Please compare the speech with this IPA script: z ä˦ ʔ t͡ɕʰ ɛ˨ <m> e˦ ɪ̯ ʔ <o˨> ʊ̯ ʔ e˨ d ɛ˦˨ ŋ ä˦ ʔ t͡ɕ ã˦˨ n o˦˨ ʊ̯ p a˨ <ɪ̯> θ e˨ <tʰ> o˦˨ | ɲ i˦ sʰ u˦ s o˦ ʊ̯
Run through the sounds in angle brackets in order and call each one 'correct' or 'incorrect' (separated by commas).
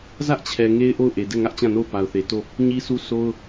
incorrect, incorrect, incorrect, incorrect